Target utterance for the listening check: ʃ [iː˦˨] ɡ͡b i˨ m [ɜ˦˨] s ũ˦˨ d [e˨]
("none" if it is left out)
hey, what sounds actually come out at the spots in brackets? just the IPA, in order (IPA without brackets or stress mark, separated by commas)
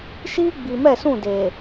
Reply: iː˦, ɛ˦˨, e˨